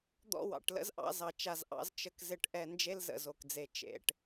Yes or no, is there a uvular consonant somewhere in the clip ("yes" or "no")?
no